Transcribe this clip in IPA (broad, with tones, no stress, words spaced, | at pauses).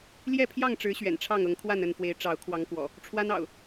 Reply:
ljɛ˥˨pʰjɑ˥˨ŋʈ͡ʂɻ̩˨˦ ɕɥɛ̰˨˩nʈ͡ʂʰɑ˥˨ŋɤ˨˦ŋ kʰwa˥˨nə˥˨nfwe˨˦ɪ̯ ʈ͡ʂɑ˨˦ʊ̯kʰwɑ˨˦ŋkwɔ̰˨˩ | ʈ͡ʂʰwa˦nɑ̰˨˩ʊ̯